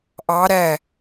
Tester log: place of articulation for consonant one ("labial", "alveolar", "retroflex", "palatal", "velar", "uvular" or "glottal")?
glottal